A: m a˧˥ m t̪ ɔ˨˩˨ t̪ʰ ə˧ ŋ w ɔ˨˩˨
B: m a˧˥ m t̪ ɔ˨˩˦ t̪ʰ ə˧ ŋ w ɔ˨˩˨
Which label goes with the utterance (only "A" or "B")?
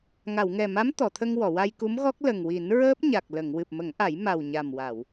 A